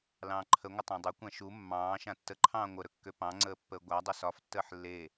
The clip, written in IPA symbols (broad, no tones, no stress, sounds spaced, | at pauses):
l ɑ̃ː ǃʰ ə ŋʷ ə tˤ ã dˤ ø kʷ ã ʃ u mː ɑ̃ː ʃ ã tː ə ǃʰ ɑ̃ː ŋʷ ə ɾ ɵ kː ø p ɑ̃ ŋ͡ǀ əː pː əː ɡʷ a dˤ ɵ s ɒ f tː əː ħ lː e